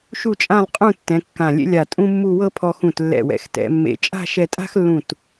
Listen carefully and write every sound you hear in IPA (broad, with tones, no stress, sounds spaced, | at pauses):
ʃ u˥˧ t͡ʃʼ ã˥˧ lˠ qʼ ũ˥˧ tː ɛ̃˩˧ kː ã˧˩ lʲ ḛ˥ lʲ a˧˩ tʼ ũ˥ mː u˥˧ w ɤ˥ pʰ ɔ˧ x ũ˧˩ t lː ɛ̰˧˩ w ɛ̰˩˧ x t ɛ̰˩˧ mː ḛ˧˩ t͡ʃʼ a̤˥˧ ʃ ɛ˧ tʼ a̤˥ x lː ũ˧˩ t